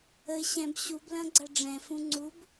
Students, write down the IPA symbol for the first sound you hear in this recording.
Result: ə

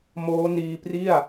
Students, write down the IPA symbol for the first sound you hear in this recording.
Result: m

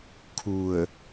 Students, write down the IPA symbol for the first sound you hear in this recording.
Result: kʰ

